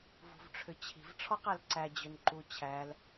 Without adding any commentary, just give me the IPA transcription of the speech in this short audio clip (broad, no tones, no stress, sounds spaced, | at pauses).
v ṳ v ʈ͡ʂʰ ʏ t͡ɕʰ i̤ v ʈ͡ʂʰ ɔ q æ l ǀ æ d͡ʑ ø n ǃ u t͡ɕʰ æ l